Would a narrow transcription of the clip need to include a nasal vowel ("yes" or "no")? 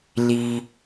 no